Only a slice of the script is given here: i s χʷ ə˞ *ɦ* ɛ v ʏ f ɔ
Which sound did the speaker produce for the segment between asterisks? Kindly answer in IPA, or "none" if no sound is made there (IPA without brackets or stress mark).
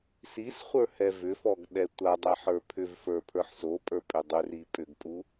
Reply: h